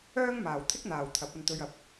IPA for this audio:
œː˥ ŋ m aː˨ w t̪ʰ ɪ˥ k̚ n̪ aː˨ w t̪ʰ ɐ˨˥ p̚ ɐ˧ n t̪ ɵ˧ ɥ ɐ˨˥ p̚

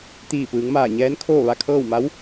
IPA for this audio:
t̪ iː˧˩ p ɯː˩˧ ŋ m aː˧˩ ɲ ɛː˧˥ n kʰ oː˥˨ ʋ a˥˨ kʰ ɤː˥˨ w m a˧˥ w

